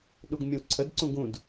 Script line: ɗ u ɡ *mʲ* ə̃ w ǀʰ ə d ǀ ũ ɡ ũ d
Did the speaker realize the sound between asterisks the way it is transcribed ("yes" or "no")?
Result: yes